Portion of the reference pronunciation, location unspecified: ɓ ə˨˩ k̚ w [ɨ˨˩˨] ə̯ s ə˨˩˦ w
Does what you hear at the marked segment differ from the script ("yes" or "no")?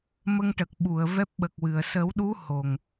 no